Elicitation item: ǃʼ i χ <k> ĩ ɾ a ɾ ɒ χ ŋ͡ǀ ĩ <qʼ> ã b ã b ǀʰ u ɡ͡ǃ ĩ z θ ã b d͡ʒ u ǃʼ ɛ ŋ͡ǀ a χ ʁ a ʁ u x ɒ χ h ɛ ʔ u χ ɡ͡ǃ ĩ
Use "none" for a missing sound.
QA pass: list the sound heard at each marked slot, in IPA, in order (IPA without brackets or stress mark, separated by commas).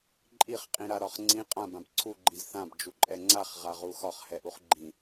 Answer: qʼ, qʼ